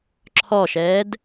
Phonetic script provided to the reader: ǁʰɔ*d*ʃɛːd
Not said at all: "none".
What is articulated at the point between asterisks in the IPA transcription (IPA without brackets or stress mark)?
none